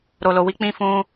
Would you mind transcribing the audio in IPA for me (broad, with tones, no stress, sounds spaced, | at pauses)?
ɾ o˨ l o˨ w i˨˦ k͡p ĩ˧ f ũ˧